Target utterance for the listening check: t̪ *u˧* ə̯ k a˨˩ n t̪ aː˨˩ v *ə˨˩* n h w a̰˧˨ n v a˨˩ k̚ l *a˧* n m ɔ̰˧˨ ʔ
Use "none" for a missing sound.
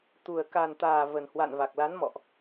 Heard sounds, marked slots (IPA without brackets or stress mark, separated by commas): u˨˩, ə˨˩, a˨˦